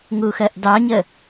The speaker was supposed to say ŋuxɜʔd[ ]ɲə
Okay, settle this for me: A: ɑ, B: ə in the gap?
A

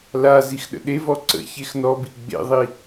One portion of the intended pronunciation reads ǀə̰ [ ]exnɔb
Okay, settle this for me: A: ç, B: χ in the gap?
A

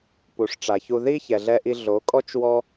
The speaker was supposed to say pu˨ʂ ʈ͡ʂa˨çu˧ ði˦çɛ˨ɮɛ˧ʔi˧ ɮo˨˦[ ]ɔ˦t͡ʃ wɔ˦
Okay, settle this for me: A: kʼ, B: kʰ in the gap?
A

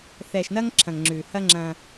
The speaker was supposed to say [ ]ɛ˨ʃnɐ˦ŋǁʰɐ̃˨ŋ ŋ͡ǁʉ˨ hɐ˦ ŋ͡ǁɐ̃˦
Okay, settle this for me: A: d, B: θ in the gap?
B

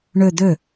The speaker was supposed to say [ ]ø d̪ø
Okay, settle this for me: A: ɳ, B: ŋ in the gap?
A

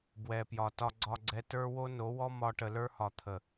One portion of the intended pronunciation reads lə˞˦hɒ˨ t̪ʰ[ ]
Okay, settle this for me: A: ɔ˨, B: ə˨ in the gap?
B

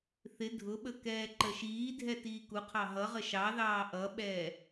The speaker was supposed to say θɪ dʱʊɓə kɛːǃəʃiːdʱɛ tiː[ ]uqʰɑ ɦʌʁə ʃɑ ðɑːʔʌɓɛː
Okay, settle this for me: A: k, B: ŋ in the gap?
A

